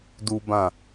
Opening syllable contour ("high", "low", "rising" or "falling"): high